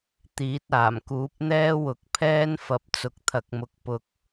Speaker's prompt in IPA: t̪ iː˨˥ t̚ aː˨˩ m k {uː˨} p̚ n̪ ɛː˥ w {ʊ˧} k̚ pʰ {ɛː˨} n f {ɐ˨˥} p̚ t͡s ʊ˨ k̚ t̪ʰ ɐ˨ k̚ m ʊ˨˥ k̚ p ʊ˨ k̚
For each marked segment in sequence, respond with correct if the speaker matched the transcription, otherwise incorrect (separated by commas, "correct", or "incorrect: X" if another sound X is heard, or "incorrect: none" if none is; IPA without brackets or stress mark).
incorrect: uː˨˥, incorrect: ʊ˨˥, incorrect: ɛː˥, incorrect: ɐ˨